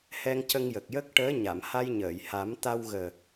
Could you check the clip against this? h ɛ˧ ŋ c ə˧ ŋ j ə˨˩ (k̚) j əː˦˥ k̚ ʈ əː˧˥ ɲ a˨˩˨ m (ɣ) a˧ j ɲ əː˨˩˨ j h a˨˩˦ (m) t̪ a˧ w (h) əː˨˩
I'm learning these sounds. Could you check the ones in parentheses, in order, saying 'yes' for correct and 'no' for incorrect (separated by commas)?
yes, no, yes, no